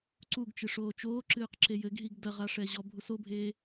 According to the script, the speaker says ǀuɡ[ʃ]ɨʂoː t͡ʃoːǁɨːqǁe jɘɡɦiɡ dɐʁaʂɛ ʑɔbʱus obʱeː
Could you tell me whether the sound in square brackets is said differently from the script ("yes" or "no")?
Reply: yes